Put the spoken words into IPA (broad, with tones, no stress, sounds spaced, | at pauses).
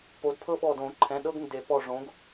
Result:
p o˨˦ d pʰ ɤ˦ ɓ ɔ˧˩ d õ˨˩˦ ǃʰ ɛ̃˩˧˩ ɗ ɤ˦ ɡ n d e˨˩˦ p ɔ˧˩ ʐ õ˨˦ ɡ